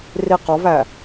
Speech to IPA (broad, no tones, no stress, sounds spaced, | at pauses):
r i q ɒ v æ